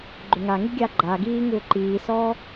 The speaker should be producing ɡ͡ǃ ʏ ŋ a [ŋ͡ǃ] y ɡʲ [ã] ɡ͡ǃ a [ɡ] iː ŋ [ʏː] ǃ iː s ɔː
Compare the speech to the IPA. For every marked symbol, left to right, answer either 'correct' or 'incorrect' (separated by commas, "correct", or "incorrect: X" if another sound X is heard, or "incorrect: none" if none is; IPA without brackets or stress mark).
incorrect: ŋ, incorrect: a, correct, correct